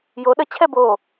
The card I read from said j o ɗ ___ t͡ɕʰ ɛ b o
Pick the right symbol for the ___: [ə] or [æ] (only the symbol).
ə